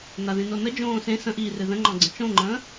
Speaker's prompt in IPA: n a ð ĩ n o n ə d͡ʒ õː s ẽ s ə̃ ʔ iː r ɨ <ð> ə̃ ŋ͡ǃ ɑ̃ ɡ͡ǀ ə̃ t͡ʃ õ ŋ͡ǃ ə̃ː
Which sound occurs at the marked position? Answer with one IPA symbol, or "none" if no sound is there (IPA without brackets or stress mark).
ð